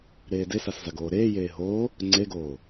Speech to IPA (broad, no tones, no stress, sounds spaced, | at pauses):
ɾ eː d e s a s z a ɡ oː ɾ eː j eː ɦ oː | ŋ͡ǀ e ɡ oː